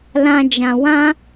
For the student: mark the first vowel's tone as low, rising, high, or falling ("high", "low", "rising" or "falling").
low